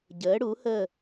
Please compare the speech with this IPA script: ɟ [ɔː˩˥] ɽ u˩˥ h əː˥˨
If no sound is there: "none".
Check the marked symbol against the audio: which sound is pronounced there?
əː˩˥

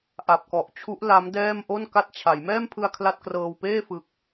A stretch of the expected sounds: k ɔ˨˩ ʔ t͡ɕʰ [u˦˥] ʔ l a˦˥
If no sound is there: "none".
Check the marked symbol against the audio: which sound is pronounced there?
u˦˥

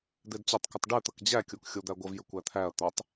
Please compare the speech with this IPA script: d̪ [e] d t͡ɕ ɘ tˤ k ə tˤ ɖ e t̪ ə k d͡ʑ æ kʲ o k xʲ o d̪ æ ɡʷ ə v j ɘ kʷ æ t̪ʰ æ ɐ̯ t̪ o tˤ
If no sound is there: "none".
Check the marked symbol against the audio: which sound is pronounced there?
e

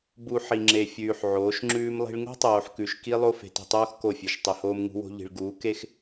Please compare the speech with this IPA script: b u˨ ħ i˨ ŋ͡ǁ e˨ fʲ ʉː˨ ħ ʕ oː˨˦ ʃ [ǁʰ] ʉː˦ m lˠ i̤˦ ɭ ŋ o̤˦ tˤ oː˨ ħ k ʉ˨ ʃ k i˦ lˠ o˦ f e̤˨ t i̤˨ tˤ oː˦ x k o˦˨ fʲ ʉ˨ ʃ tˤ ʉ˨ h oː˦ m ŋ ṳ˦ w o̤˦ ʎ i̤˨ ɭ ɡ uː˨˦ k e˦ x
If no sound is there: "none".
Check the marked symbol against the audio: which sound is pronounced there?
ŋ͡ǁ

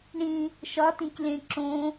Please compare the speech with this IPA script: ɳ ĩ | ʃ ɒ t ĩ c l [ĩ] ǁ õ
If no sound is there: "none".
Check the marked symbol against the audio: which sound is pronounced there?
ẽ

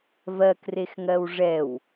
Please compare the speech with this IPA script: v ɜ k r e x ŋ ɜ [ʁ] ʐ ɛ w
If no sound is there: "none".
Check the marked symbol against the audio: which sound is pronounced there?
w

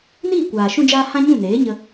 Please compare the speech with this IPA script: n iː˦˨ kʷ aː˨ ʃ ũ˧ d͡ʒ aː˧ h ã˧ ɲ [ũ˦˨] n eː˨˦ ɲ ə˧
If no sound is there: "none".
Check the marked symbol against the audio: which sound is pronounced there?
ũ˦˨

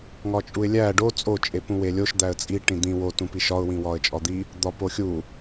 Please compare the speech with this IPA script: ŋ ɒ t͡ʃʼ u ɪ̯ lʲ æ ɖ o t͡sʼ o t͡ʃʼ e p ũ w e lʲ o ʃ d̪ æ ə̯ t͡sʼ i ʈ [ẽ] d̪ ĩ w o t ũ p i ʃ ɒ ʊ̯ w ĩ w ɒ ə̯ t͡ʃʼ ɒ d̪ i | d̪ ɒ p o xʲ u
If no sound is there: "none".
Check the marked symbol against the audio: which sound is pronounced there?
ĩ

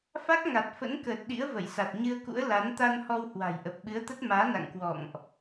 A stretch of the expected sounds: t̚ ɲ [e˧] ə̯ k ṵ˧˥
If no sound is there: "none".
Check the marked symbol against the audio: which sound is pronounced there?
ɨ˧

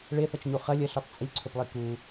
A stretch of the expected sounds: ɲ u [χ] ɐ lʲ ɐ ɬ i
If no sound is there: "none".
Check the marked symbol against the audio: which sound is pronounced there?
χ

